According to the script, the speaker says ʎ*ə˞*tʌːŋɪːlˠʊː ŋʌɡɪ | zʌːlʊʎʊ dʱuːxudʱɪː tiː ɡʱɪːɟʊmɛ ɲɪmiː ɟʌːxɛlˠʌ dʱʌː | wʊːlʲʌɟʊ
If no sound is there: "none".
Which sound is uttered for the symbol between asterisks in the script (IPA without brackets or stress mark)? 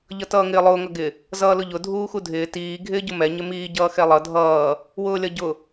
ʌ